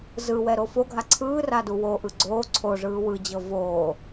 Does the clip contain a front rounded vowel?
no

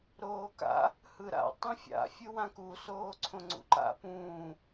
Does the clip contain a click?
yes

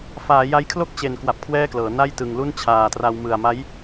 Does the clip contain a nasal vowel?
no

